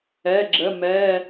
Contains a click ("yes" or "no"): yes